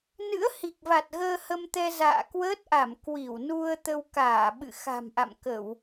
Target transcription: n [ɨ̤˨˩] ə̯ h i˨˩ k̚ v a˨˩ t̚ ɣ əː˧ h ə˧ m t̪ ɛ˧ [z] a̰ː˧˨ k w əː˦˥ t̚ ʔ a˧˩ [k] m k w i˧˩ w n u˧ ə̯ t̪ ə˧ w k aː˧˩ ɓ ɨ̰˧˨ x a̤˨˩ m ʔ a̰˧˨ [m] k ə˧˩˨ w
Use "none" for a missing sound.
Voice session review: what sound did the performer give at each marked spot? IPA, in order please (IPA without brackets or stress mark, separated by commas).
ɨ̰˧˥, z, none, m